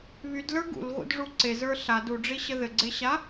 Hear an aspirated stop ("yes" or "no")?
no